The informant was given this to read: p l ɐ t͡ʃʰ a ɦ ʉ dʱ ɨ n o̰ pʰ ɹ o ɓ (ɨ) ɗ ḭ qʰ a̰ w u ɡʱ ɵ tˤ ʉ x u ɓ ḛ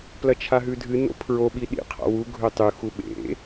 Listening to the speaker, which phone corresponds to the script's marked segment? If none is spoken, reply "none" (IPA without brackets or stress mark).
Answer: i